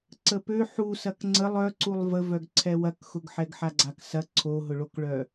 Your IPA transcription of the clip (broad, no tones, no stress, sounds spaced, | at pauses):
ǀ ə p ø ħ u s ɐ k ŋ͡ǀ ə lˠ œ ǀ u lˠ v ə v œ ɡ ǀʰ ɛ w ɐ k x ʊ ɡ ħ ɛ ɡ ħ a ɡ͡ǀ a k s ɐ ǀʰ o ɦ ʊ ɭ o k ɭ œ